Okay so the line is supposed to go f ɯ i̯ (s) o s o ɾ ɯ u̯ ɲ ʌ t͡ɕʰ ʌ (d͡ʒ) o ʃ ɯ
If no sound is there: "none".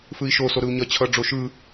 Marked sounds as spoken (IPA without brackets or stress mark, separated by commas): ʃ, ɖ͡ʐ